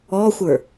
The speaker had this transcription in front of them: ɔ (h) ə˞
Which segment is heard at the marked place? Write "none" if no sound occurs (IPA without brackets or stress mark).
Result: xʷ